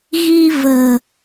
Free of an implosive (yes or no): yes